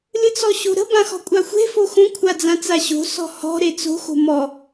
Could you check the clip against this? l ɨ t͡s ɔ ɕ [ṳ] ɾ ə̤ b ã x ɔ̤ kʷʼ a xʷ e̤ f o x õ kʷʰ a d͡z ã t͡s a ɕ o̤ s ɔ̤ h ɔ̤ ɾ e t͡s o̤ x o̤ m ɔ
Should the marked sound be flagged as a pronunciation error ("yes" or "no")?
yes